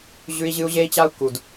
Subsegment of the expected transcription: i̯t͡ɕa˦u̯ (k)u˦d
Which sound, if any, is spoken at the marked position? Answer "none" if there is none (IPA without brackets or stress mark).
k